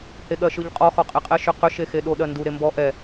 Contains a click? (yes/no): no